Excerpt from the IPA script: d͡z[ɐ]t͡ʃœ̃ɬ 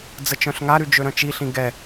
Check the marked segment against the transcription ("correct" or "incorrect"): incorrect